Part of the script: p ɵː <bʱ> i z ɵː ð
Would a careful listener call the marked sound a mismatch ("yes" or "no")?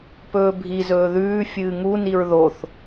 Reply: no